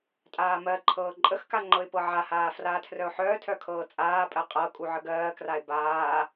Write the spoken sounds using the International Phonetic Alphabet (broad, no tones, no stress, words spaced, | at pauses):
tʼaːmɜǃʰɤː ǃʼəxka ŋ͡ǃɤɪ̯pɤʕahaː fraːtʰrœʊ̯ħœːtʰœ kʰɤːt͡sʼaːpʼɜ qʼɤ kʼuʕəɡɜːkraɪ̯ baː